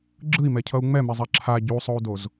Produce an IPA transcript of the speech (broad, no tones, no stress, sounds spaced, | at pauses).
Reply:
ɡ͡ǁ ɯ i̯ m ɛ cʰ ʌ u̯ ŋ͡m ɛ m ɛ zˤ a ǁʰ a ɟ u sˤ o u̯ d o z